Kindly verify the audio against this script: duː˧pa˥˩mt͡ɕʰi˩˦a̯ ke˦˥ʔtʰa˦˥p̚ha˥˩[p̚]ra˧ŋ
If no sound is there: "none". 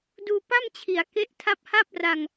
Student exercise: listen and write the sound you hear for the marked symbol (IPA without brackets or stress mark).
p̚